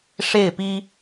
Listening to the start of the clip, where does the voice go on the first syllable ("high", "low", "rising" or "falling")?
falling